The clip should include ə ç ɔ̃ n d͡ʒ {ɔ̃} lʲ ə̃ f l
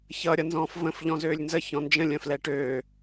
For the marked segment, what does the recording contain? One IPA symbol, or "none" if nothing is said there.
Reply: ə̃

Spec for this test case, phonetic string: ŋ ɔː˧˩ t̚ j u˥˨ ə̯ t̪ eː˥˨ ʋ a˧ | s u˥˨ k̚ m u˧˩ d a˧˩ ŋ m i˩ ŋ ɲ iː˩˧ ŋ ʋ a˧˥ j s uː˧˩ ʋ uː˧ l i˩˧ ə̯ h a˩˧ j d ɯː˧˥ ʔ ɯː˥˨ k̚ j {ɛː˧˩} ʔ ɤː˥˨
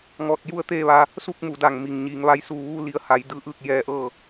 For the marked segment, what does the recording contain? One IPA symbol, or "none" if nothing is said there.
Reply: ɛː˧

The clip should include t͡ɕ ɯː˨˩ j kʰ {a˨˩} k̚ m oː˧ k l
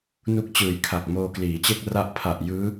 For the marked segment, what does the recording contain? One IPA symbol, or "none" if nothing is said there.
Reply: a˨˩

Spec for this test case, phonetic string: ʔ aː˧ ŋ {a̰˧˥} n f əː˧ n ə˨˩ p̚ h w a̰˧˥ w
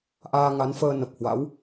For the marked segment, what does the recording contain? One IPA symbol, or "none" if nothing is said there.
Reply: a˨˦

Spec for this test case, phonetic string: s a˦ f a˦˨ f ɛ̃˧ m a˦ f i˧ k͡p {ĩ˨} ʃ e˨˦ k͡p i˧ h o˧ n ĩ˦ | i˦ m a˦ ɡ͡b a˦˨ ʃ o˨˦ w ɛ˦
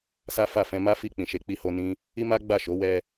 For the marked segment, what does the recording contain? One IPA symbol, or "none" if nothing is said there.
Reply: ĩ˨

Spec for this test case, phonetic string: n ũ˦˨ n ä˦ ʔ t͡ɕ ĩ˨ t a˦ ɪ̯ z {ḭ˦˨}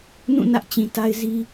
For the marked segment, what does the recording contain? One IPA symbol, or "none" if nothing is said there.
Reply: i˦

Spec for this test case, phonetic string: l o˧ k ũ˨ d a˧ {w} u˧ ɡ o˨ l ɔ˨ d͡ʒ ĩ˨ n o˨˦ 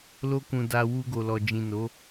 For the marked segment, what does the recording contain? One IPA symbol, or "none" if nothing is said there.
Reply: w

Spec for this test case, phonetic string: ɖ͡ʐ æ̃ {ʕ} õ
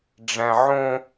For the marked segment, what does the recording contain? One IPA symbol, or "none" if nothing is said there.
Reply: ʕ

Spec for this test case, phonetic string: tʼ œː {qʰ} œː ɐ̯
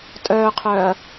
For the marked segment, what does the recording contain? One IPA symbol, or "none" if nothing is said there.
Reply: qʰ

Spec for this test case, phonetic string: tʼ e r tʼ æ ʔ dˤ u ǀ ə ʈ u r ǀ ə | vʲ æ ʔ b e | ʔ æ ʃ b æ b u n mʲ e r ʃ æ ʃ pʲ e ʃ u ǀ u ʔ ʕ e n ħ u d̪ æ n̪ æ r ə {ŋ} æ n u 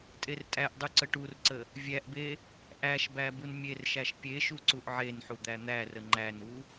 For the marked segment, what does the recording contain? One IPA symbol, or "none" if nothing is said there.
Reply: ŋ͡ǃ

